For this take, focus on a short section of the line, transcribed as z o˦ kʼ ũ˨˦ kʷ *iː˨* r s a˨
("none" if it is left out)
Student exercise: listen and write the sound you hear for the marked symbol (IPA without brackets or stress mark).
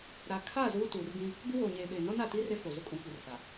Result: i˨